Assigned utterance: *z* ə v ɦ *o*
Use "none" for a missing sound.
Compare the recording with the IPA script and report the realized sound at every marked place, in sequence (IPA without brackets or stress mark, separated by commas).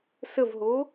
s, o